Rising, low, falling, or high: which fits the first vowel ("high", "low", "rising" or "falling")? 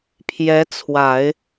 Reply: rising